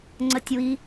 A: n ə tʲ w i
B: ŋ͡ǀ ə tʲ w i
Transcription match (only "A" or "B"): B